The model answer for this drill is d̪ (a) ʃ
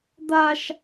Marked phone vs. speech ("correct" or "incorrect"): correct